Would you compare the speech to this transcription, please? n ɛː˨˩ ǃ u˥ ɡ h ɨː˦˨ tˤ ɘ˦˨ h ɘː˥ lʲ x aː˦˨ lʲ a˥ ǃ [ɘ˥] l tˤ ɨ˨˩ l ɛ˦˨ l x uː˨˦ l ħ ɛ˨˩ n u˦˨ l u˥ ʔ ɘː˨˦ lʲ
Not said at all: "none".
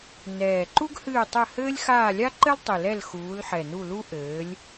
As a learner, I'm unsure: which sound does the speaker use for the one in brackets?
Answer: ɘ˥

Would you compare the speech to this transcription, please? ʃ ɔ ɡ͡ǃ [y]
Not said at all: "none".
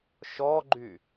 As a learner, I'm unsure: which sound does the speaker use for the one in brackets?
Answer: y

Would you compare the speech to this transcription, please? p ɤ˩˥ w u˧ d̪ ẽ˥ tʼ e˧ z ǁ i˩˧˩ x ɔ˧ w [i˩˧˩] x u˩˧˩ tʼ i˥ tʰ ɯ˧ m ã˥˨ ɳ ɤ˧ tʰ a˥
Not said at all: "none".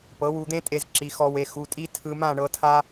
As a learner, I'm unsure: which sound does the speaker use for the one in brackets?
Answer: e˩˧˩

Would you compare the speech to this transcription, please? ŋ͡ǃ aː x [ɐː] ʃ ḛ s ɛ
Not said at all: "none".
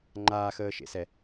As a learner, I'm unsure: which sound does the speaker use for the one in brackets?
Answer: əː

